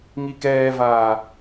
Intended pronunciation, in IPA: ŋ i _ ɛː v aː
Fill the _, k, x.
k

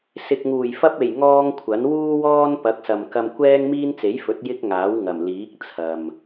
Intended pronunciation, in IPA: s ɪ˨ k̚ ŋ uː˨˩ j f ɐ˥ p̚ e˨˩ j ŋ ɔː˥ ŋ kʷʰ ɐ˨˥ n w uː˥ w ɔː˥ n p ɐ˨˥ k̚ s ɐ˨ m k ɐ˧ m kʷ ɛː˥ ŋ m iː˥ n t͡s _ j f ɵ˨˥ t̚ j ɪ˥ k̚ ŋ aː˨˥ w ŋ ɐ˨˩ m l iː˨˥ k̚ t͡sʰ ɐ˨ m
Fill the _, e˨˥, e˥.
e˨˥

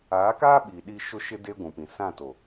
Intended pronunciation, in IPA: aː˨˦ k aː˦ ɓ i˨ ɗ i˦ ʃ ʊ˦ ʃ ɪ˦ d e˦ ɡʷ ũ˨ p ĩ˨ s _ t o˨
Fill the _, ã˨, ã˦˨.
ã˦˨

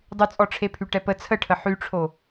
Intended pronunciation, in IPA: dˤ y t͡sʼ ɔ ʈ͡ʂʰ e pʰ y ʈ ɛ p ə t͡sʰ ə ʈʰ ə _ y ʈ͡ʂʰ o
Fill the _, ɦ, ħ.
ħ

